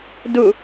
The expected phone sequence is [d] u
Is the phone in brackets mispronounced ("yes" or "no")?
no